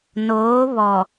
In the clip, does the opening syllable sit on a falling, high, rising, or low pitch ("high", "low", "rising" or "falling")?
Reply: rising